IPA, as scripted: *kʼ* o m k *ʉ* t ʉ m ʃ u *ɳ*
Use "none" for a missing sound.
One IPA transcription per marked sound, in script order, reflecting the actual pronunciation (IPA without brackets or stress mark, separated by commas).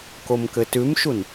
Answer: k, ɘ, n